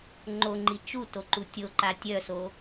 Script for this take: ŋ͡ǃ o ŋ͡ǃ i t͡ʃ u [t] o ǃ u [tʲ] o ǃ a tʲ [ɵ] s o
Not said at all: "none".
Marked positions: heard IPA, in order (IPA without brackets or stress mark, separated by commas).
t, tʲ, œ